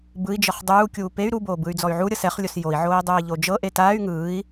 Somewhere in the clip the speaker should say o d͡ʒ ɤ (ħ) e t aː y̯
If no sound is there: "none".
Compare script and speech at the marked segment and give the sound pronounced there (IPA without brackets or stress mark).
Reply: ʔ